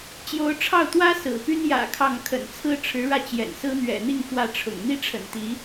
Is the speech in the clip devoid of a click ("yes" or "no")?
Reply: yes